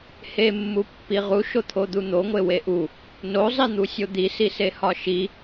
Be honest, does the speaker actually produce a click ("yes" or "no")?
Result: no